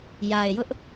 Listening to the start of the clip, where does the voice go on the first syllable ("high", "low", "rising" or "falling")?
low